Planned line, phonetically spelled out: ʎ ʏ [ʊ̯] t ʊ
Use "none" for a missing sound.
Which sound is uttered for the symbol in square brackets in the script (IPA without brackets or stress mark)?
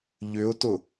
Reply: ʊ̯